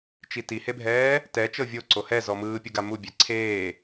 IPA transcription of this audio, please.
t͡ʃ i t i h e bʱ ɛː | t ɛ t͡ʃ ɤ vʲ o ǀ o h ɛ z ɔ m ɯː pʲ u ɡ a m u bʲ ɛ ǀʰ eː

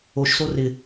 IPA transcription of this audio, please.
o ʃ s o r ɪ

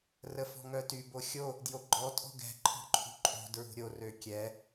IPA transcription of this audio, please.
r ə f ɔ̤ ŋ œ t y b o xʲ o | d j o ɡ͡ǃ ɔ tʼ ɔ̤ ɡ ɛ̤ ǃʰ ɔ̤ ǃʰ ṳ ǃʼ o̤ d ɹ ṳ ɾʲ o r ø kʲ ɛ

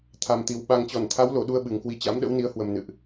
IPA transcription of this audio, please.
t̪ʰ a˨˩ m t̪ i˨˩ w ɓ a˨˩ ŋ t͡ɕ ɔ˧˩ n t̪ʰ a˨˦ w l o˧˩ ɗ u˧ ə̯ ɓ ɨ˨˩ ŋ k w i˨˦ t͡ɕ a̰˧˥ m ɗ ə̰˧˥ w n i˨˦ ə̯ h w ə˨˩ m n ɨ̰˧˨ ʔ

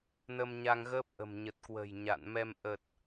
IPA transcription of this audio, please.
n ə˧ m ɲ a˧ ŋ ɣ əː˦˥ p̚ ʔ ə̤˨˩ m ɲ ə˨˩ t̚ k w ə̤˨˩ j ɲ a̰˧˨ n m ɛ˧ m ʔ ə˨˩ t̚

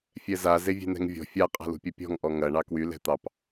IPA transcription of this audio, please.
fʲ ɛ z a z e vʲ e̤ n ɛ̤ ŋ vʲ ɔ̤ fʲ a qʼ a̤ l ṳ pʲ ɐ pʲ ɔ̤ ŋ ʔ ɔ ŋ ɐ ɳ ɑ k w y l ɛ̤ t̪ ɑ p

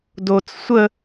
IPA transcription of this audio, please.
d o t͡s sʷ ə

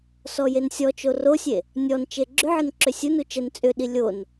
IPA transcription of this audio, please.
s ɔ j e n sʲ ɔ t͡ʃ o r o sʲ e | nʲ ɔ n t͡ʃ e ɡ͡ǁ ʏ ʕ ə n ǁ ʏ sʲ u n u t͡ʃ ə n t͡sʼ ʏ ɗ i lʲ o n

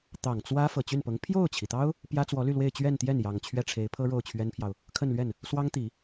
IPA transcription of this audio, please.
t̪ ɑ˨˩ ŋ t͡s w ä˥ f ɤ˨˩ t͡ɕ y˥˩ n p ɤ˧˥ ŋ pʰ j o˥˩ ʊ̯ t͡ɕʰ i˩ t̪ ɑ˥ ʊ̯ | p j ä˥ t͡s w ɔ˧˥ l y˥˧ l w e˥˧ ɪ̯ t͡ɕ ɥ ɛ˥˧ n t̪ j ɛ˥˩ n j ɑ˨˩ ŋ t͡ɕʰ ɥ ɛ˥˩ ʈ͡ʂʰ e˧˥ ɪ̯ pʰ ɤ˥ ɻ o˥˩ ʊ̯ t͡ɕʰ ɥ ɛ˥ n pʰ j ɑ˨ ʊ̯ | kʰ ə˥˧ n l ɥ ɛ˥˩ n | s w ɑ˥ ŋ t̪ i˨˩˦

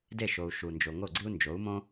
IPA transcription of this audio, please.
d e˥˩ ʃ o˩ u̯ ʃ u˩ n d͡ʒ o˩ ŋ o˥˩ ɡ͡ǀ i˥ u̯ n d͡ʒ o˩˥ u̯ m õ˥

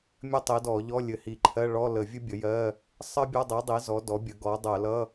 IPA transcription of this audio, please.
mʲ ɘ˥ tˤ i˩˥ d ɔ˧˩˧ ʎ ɔ˧˥˧ lʲ ɘ˧˩˧ h i˧˩˧ ǃʰ ɜ˧˥˧ ɭ ɔ˧˥˧ l ə˧˩˧ vʲ ɘ˥ bʲ ə˩˥ j ɜ˧˥˧ | sˤ ɜ˥ bʲ ʌ˧˥˧ dˤ i˩˥ dˤ i˩˥ z ɔ˩˥ d ɔ˩˥ bʲ ə˩˥ ɡ ɔ˩˥ dˤ ɜ˧˩˧ l ʌ˧˥˧

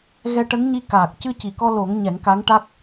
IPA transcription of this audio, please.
ɣ ɛ˧ ʈ ə˧˥ ŋ ɲ i˧ k aː˨˩ k̚ c ɨ˧ c i˨˩ k ɔ˧ l o˨˩˦ ŋ ɲ ɛ˨˩˦ ŋ k a˧˥ ŋ ʈ a˦˥ k̚

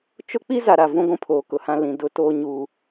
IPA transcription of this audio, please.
t͡ʃ ʊ˦ k͡p i˦ z a˨ ɾ a˨ v ũ˦ ɡʷ ũ˦ pʰ oː˨ k ʊ˨ h ã˦ l ĩ˨ d ʊ˦ t oː˦ ɲ u˦

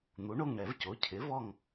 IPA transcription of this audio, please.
n̪ u˩˥ ɳ o˦˨ ŋ ɳ ɛ˨˩˦ v c o˩˥ cʰ ɪ˩˥ v ɔ˦˨ ŋ

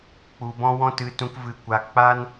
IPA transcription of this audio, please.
k͡p u˧ b ɔ̃˦ w ɔ̃˦ t ɨ˧ t ũ˧ k v ɨ˧ kʷ a˧ k͡p a˦ n

